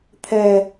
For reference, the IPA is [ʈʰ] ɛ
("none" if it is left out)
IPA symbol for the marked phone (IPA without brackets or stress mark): t̪ʰ